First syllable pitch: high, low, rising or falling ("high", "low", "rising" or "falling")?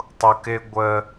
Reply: low